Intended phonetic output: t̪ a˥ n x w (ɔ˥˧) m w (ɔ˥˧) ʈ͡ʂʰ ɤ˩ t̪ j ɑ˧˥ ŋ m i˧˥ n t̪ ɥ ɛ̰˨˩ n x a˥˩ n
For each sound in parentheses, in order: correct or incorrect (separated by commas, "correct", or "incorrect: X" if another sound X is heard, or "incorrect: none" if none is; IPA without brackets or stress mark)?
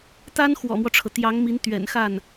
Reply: incorrect: ɔ̰˨˩, incorrect: ɔ˦